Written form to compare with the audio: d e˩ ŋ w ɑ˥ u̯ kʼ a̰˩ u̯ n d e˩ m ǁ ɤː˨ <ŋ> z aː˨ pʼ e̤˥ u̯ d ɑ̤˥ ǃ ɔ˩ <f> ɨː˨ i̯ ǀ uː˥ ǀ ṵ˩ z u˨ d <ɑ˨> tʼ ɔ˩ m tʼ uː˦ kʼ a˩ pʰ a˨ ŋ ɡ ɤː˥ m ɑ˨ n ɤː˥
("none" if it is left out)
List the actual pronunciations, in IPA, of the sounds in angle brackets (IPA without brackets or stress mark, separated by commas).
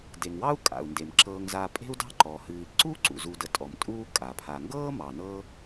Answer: ŋ, h, ə˨